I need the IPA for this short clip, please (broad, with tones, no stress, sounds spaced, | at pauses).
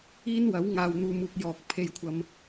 iː˥ n w ɐ˨˥ w ŋ aː˧ w n̪ uː˧ m uː˧ k̚ j ɔː˨ k̚ pʰ e˧ j kʷʰ ɐ˧ m